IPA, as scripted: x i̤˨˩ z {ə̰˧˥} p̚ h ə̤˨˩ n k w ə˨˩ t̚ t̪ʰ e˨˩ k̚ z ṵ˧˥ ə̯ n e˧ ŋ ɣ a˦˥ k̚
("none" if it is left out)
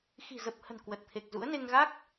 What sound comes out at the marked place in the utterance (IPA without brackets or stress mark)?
ə˨˩